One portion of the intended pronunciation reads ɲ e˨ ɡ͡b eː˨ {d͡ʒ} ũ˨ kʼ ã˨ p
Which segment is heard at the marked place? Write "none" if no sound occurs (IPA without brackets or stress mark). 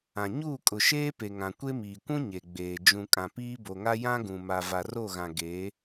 d͡ʒ